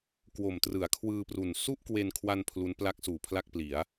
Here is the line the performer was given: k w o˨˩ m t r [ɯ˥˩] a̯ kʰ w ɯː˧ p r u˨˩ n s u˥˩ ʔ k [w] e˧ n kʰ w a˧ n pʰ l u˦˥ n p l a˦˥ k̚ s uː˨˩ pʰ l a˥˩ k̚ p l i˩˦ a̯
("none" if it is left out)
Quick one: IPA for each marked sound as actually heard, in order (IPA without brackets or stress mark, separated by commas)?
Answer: ɯ˩˦, w